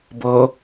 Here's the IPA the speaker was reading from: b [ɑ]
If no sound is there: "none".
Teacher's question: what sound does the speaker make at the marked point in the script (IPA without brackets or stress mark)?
ʌ